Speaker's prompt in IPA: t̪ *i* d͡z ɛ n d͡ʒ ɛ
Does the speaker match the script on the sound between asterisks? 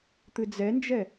no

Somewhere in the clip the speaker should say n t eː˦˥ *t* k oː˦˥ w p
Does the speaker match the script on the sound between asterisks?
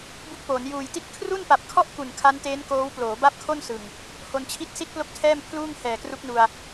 no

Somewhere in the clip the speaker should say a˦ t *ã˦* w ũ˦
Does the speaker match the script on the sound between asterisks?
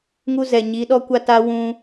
no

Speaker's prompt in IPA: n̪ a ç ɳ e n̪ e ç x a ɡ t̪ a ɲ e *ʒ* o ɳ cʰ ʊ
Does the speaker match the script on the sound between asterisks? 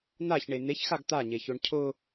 no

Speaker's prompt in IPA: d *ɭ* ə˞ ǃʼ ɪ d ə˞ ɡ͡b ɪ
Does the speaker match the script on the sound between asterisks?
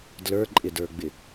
no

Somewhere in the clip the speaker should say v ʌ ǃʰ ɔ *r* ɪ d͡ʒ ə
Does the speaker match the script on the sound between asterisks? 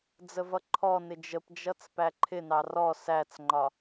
no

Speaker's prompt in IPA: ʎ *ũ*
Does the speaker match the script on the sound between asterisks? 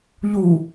no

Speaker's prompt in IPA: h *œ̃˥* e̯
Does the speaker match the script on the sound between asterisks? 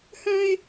yes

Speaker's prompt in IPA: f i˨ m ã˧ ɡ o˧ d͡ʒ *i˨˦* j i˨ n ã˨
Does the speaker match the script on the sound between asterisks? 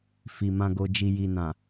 no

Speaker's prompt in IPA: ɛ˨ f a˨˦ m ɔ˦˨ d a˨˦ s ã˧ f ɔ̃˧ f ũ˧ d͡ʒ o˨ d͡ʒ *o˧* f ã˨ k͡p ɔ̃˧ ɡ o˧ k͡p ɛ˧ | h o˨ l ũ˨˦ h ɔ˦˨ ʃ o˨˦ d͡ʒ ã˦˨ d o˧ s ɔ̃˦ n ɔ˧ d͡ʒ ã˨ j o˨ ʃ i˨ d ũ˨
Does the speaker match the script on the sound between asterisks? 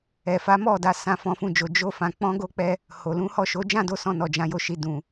yes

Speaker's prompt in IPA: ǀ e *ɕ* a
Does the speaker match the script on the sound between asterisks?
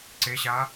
yes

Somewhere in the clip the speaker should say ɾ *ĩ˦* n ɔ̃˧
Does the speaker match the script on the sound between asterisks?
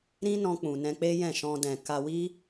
yes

